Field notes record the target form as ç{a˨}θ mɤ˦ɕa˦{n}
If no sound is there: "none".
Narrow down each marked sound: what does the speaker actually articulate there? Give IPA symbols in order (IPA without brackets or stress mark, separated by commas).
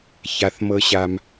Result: a˨, m